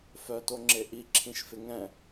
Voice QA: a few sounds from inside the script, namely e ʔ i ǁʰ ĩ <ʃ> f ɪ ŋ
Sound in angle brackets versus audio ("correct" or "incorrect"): correct